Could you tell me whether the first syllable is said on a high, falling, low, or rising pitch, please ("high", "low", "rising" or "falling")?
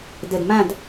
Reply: low